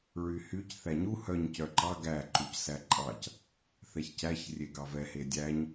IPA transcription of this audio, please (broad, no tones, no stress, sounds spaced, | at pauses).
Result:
ɹ y h y c θ æ ɲ u h œ ɲ c œ ǃ ɑ ɡ æ ǃ u c s æ ǃʼ ɑ c | θ ɛ ç c æ ç rʲ e ɡ ɑ v ɛ h e dʲ æ ɲ